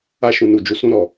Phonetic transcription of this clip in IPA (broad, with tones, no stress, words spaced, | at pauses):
a˧ʃũ˨nu˨ d͡ʒu˨sũ˧ɾɔ˨